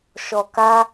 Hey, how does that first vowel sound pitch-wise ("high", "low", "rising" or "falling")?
low